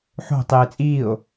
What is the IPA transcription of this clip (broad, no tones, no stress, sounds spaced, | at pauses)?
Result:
ħ o̤ tˤ eː t͡sʼ iː o̯